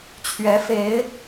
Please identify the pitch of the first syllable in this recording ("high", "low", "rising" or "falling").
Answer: rising